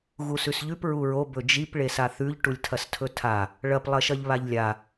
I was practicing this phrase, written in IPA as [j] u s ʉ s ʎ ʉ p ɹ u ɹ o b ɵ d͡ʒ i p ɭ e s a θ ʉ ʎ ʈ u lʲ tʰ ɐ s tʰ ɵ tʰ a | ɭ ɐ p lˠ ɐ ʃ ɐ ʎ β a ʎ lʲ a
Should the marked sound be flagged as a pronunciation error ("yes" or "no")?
yes